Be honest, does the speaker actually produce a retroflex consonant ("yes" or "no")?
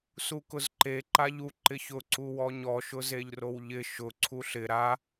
no